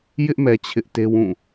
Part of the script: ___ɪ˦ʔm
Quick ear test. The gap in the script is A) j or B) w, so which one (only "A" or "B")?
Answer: A